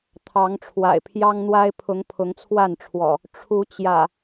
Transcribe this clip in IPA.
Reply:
t̪ʰ ɑ˨˦ ŋ ʈ͡ʂʰ w a̰˨˩ ɪ̯ pʰ j ɑ˦ ŋ n̪ w a˦ ɪ̯ pʰ ʊ˨˦ ŋ pʰ ʊ˨˦ ŋ t͡sʰ w a˥˨ n ʈ͡ʂʰ w ɔ̰˨˩ | ʈ͡ʂʰ u˨˦ t͡ɕ j ä̰˨˩

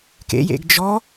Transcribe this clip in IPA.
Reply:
k ḛ j ḛ ɡ d͡ʒ ɔ

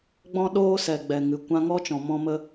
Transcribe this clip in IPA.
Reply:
ɡ͡b ɔ̃˦ ɗ oː˦ s ɛ˨ ɡ͡b ɛ˨ ŋ ɨ˨ kʷ ã˧ ŋ ɔ˦ t͡ʃ ɔ̃˨ m ɔ̃˦ m ə˦

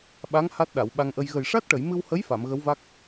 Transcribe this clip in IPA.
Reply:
ɓ a˧˥ ŋ h a˦˥ t̚ ɗ a˨˩˨ w ɓ a˧ ŋ ʔ ə˧ j ɣ ə˨˩ j ʂ a˦˥ t̚ ʈ ə˨˩˨ j m ɨ˧ w h ə˧˥ j f a˨˩˨ m ɣ ə˧˥ w v a˦˥ k̚

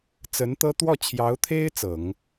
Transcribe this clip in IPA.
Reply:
t͡s ə˧˥ n t̪ ɤ˥ t̪ w ɔ˥˩ t͡ɕʰ j ɑ˧˥ ʊ̯ t̪ʰ e˥ ɪ̯ t͡s ɤ˨˩˦ ŋ

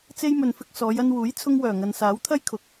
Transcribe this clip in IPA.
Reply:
t͡s e˧ j m ɵ˨ n f ɪ˧ k̚ s ɔː˨˧ j ɐ˧ n w uː˨˥ j t͡sʰ ʊ˧ ŋ w œː˨˩ ŋ ɐ˨ n s aː˨˥ w t̪ʰ ɐ˥ j kʰ ʊ˨ k̚

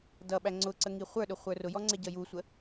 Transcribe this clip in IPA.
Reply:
d ʌ ɓ æ ŋ͡ǀ ʊ ǀ ə ŋ i χʷ ə˞ ɗ ʊ χʷ ə˞ r ʊ j ɔ ŋ͡ǀ ɛ ɟ ʌ j u sʷ ə

